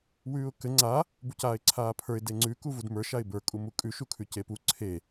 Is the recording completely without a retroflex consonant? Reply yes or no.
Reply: yes